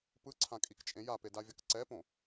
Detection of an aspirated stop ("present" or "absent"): present